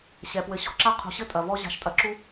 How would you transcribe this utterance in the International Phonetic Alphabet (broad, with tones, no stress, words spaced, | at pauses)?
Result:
ɕɛ˩pwɘ˨ ɕɔ̤˦ǁa˥ qʰṳ˨ɕɘ˥tʼɐ˩vɔ˦ ʑa̤˨ʃtʼɐ˨ǁu˦